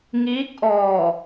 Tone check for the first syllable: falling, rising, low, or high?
rising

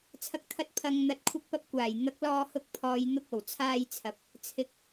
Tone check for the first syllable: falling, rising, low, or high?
low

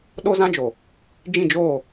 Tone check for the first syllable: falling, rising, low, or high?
high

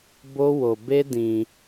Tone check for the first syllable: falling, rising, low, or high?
high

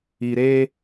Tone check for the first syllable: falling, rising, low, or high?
low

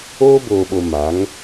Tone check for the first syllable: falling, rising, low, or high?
high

